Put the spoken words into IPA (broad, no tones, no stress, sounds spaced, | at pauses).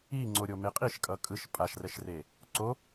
i ŋ͡ǀ o ɾʲ o m e qʼ i ʃ kʼ ʌ kʼ ɯ ʃ pʼ a ʃ r ɛ ʃ r e | ǀ o